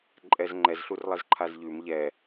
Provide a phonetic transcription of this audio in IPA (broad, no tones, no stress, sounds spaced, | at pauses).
ǃʼ ɛ z ŋ͡ǃ ɛ z ɬ u r lˠ ɛ z ǃʰ a z ʎ ʉ m ʎ ɛ